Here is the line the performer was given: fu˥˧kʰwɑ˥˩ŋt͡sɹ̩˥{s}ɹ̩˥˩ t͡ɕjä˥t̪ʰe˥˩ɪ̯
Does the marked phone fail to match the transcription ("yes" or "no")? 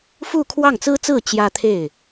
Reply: yes